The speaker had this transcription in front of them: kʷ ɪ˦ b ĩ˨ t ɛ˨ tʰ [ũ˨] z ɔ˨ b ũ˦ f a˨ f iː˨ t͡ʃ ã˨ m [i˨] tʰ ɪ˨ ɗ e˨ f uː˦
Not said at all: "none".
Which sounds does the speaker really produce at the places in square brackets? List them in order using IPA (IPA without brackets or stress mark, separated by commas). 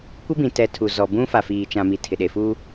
u˨, i˨